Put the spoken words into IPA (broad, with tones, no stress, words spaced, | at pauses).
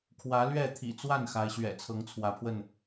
kʰwä˨˦lɥɛ˥˨ t̪ʰḭ˨˩t͡swa˥˨n xa˨˦ɪ̯ɕɥɛ̰˨˩ t͡sʰɤ˨˦ŋt͡sʰwä˨˦pʰwə˥˨n